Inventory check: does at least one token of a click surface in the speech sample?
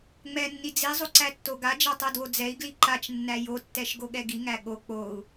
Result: yes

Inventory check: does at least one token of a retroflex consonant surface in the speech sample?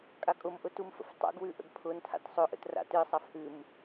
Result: no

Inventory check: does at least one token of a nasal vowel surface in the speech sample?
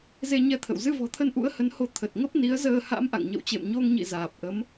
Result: no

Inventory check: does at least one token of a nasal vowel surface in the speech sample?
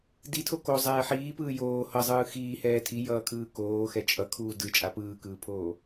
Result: no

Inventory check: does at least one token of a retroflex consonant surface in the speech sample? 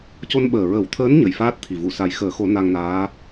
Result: no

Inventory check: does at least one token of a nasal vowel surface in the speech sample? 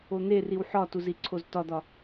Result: no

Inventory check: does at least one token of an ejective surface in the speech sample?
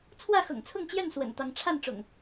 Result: no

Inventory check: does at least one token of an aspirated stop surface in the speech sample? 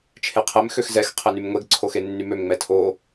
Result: yes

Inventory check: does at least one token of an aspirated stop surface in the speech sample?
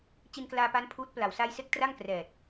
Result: yes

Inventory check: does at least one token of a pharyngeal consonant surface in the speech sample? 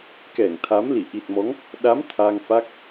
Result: no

